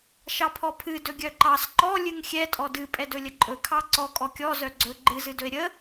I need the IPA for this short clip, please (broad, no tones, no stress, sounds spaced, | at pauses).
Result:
ʃ ɑ pʰ ɔ pʰ ɨ d ɵ ɡʲ œ ǃ ɑ s ǃ ɔ lʲ ɨ ŋ xʲ ɛ tʼ ɔ d ɨ pʼ ɛ d ɵ lʲ ə ǃʼ ɵ kʰ ɑ ǀ ɔ kʼ ɔ kʲ ɔ z œ ɡ͡ǀ ɵ ɡ͡ǃ ɨ z ɨ d ɵ e̯ ɾʲ ə